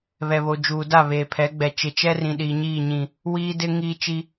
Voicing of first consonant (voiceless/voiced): voiced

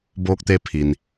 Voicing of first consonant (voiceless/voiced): voiced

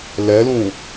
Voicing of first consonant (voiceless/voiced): voiced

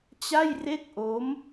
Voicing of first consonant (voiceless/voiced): voiceless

